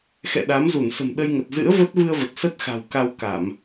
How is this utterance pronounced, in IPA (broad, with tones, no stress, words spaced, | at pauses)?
xɛ̰˧˨ɗa˨˦mzu˧˩n sə̤˨˩m ɗə˧jŋə˨˩t̚ zɨ̰˧˥ə̯və˦˥t̚ vɨ˧ə̯və˨˩t̚ sə˦˥t̚xa̤˨˩w ka˧wka˧˩˨m